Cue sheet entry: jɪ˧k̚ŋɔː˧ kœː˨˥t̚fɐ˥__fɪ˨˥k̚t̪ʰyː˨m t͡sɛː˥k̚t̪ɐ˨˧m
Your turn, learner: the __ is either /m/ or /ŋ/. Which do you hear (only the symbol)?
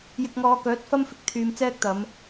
m